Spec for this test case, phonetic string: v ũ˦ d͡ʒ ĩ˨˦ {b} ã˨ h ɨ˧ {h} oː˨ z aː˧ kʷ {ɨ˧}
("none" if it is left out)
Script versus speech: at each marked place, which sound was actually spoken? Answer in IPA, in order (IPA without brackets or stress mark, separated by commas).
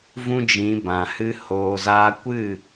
b, h, ɨ˦˨